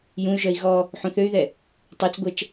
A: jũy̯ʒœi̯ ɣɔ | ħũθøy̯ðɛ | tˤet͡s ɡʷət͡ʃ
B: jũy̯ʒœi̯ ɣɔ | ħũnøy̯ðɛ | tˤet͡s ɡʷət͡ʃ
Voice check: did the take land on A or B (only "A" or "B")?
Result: A